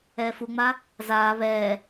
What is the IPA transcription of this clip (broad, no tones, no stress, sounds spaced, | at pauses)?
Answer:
ɛː f u ŋ͡m a | z aː β ɛː